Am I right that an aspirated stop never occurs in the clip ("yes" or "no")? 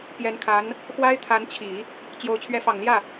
no